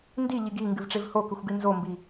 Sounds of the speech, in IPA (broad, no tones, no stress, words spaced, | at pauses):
ndiʎiɡ i ŋɡɨvʈ͡ʂevhokʉxʷ ɡinzombi